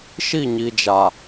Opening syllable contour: falling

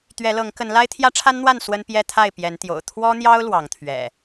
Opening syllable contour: rising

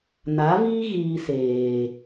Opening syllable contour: rising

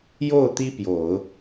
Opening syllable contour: falling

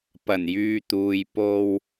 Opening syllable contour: low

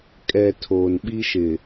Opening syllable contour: low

